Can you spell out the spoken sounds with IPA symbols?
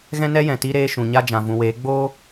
ɣ ɛ̃˦ n ɛ˦ j ɛ̃˨ t i˧ ɾ eː˧ ʃ ũ˨ ɲ a˦ d͡ʒ ã˨ v ũ˨ w eː˨˦ ɡ͡b oː˦

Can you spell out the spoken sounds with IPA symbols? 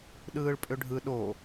ɗ ɯː ɭ pʼ ʏ ɖʱ ɯ ɗ o

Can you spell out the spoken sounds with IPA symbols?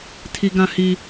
tʰ i˦ ɡ ã˦ h i˦

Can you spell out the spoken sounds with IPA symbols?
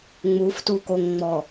ŋ͡m u f t u k o ŋ ŋ͡m ɔ

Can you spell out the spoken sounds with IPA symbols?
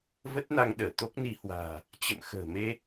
v ə˦˥ t̚ n a˧ ŋ ɗ əː˧˩ t̪ o˦˥ k̚ n i˧ h w a̤ː˨˩ | t͡ɕ ə̰˧˨ m x ə̤ː˨˩ m e˧

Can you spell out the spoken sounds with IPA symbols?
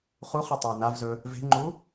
χ u χ ɨ tˤ ɵ u̯ n a v z ɵ | v e̤ ŋ͡ǃ u

